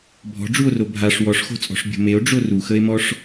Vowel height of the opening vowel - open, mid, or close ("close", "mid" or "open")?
mid